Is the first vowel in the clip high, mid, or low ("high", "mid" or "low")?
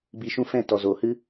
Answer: high